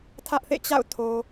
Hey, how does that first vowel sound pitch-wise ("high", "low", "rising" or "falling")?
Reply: high